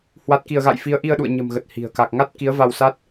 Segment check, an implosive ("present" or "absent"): present